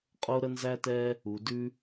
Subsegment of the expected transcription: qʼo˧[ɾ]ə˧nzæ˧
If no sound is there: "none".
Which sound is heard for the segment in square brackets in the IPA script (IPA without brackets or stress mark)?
ɾ